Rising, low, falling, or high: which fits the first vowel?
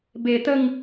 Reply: low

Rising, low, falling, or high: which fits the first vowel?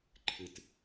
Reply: low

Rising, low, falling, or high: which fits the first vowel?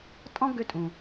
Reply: high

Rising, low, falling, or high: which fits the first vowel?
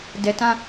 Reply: low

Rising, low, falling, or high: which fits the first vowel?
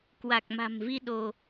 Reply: low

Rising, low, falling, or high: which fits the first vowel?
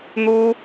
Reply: high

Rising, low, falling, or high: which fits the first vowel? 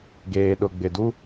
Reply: low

